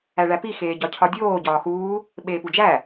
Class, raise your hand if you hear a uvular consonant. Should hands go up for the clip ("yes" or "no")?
no